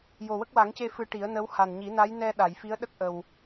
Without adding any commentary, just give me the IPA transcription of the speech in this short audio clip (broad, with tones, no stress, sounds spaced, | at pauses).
j o˨˩ w ə˦˥ k̚ w a˨˩˦ ŋ c e˧ f ɨ˧ ʈ i˨˩˦ ə̯ n ə˧˥ w h a˨˩ n ɲ i˨˩˦ n a˧˥ j n ɛ˧ ɗ a˨˩˨ j f i˧˥ ə̯ ɗ ə˦˥ k̚ ʔ ə˨˩ w